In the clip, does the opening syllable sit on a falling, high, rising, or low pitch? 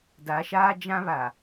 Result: rising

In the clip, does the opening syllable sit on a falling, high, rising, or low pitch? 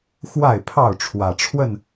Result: falling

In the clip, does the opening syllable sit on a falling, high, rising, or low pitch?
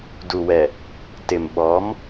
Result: low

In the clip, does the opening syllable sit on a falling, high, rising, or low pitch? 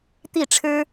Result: falling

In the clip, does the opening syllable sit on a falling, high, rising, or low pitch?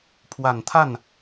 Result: low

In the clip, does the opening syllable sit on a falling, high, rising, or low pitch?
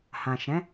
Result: low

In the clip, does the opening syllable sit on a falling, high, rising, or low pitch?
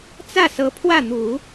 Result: falling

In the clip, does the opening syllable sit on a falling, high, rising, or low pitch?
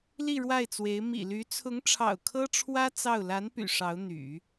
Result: falling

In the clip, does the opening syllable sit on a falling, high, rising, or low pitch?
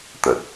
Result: low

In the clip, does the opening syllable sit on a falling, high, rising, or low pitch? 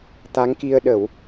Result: rising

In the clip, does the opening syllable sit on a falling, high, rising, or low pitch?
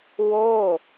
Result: falling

